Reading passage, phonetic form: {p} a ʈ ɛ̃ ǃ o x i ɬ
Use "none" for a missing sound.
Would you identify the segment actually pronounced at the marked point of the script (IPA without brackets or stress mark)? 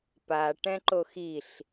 p